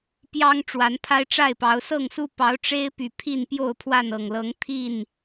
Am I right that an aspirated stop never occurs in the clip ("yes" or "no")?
no